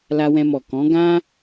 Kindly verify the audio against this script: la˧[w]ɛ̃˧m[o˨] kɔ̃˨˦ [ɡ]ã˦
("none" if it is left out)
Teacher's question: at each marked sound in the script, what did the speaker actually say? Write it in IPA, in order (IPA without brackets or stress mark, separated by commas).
w, ɔ˨, ɡ